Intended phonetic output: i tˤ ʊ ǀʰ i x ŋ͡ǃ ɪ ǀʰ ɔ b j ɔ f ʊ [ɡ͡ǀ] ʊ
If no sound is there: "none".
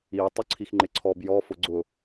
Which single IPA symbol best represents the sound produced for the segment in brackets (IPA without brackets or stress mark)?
ɡ͡ǀ